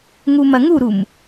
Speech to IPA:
ŋ u m ɐ ŋ u ɾ u m

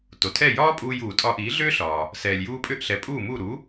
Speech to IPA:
t o˩ tʰ ɛ˥˩ j ɒː˥ pʼ uː˧ j uː˩ tʼ ɒ˧ ʔ iː˩˥ ɮ ʏː˥ ɬ ɒː˩ | s ɛː˩ lʲ j uː˧ pʼ ʏ˥˩ ʔ ɬ ɛ˩˥ pʼ uː˥˩ m u˥˩ ɾ u˩˥

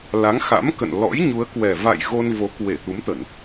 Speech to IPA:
l a˨˦ ŋ x a̰˧˥ m k ə̰˧˨ n l ɔ̰˧˥ j ɲ u˨˦ ə̯ k w ɛ˨˩ v a̰˧˨ j ɣ o˧ n v o˨˦ k w e˧˩ t̪ u˨˦ m t̪ ə˧˩˨ n

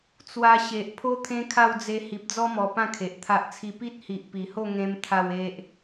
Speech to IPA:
t͡s w a˧ ɕ e˨ ʔ pʰ o˦ t̪ʰ ẽ˦ kʰ a˥˧ w d͡z e˧ h i˨ p̚ d͡z ɔ˦ m ɔ˨˩ p ã˥˧ kʰ e˨ ʔ t̪ʰ a˦ ʔ t͡sʰ i˥˧ p i˦ t̚ h i˨ ʔ p i˨˩ h o˥˧ ŋ ẽ˦ m t̪ʰ a˥˧ w e˦ ʔ

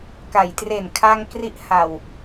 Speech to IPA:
k a˩˦ j t r e˨˩ n kʰ a˧ ŋ k r i˥˩ ʔ h a˨˩ w

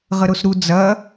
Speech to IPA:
ʁ ə ɾ o s ɾ u d͡z ɐ

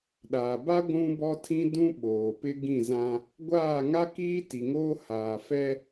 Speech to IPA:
ɗ aː˨ b a˦ ɡʷ ũ˦ b ɔ˦ tʰ ĩ˦ d ũ˦ ɓ oː˨ p ɪ˦ ɡ ĩ˦˨ z ã˦ | ɡʷ aː˦˨ ŋ a˦ k iː˦ t i˨ ŋ oː˦ h aː˨ f ɛ˦

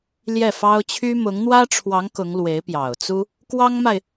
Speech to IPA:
l j ɛ˥˩ f ɑ˥ ʊ̯ t͡ɕʰ y˥ m ʊ˧˥ ŋ n̪ w ä˥ ʈ͡ʂʰ w ɑ˧˥ ŋ k ʊ˧˥ ŋ l w e˧˥ ɪ̯ p j ɑ˨˩ ʊ̯ t͡s u˥ | k w ɑ˥ ŋ m a˨ ɪ̯

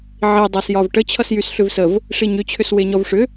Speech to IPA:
ʕ i dˤ a s j ɒ v ʈ ə t͡ɕʰ ʌ s j y s ɬ ʏ v s ə v | ʂ i ɲ ʏ t͡ɕʰ ʏ s w e ɲ ɔ v ʂ ʏ

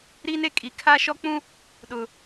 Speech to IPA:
ɾ iː˦ n e˦ kʼ iː˨ kʰ a˦ ʃ ɔ˦ k͡p ũ˦ | ɗ ʊ˨

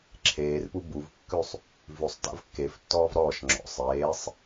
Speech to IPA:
ǁʰ eː r p u b u v kː ʉ sˤ | v ʉ sˤ t a̰ v kː e f tː ɔː v ɾ ɔː ʃ ŋ͡ǁ ɔ̰ sˤ eː sˤ

